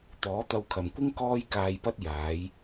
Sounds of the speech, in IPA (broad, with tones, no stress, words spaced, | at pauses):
t̪ɔː˨˥t̪ɐ˧wkʰɐ˨mkʷɪ˥ŋ kɔː˥jkaː˧jpɐ˥t̚ jaː˨˧j